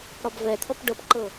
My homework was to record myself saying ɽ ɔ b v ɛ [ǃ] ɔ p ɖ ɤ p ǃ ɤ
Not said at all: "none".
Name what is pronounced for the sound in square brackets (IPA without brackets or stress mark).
t̪ʰ